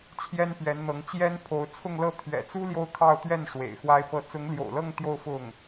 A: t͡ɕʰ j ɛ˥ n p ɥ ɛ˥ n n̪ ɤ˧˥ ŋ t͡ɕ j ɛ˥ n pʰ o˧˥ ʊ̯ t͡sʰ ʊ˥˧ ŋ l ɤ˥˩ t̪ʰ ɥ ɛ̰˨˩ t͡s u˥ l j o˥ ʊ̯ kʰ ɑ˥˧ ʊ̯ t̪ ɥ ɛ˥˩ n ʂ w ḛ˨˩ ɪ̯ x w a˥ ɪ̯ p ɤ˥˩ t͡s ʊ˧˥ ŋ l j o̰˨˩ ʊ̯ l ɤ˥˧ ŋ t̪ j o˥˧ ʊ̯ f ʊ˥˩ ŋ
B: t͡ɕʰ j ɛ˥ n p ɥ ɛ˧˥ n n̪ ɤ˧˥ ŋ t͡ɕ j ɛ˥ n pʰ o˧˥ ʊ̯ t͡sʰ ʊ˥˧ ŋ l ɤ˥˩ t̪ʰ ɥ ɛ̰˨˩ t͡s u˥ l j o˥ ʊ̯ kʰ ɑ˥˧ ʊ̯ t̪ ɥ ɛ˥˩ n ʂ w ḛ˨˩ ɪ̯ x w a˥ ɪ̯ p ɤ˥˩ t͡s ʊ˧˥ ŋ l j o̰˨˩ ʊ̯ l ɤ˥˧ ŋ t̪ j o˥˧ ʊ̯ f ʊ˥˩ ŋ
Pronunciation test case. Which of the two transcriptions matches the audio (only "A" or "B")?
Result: B